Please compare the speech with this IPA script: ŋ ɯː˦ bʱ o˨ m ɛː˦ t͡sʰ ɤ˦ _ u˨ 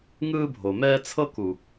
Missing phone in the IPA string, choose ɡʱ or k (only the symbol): k